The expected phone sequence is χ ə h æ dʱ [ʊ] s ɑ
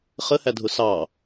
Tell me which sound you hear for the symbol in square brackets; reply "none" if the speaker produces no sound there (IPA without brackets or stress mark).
ʊ